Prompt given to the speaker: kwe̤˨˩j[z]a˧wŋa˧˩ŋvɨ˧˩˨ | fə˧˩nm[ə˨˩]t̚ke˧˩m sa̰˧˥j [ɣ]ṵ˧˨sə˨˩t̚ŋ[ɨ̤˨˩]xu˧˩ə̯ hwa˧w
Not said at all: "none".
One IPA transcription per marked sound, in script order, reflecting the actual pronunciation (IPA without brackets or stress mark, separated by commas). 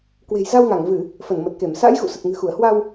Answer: z, ə˨˩, ɣ, ɨ̤˨˩